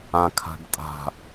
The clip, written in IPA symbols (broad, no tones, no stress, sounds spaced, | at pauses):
ã kʰ a̤ ɖ tʼ a̤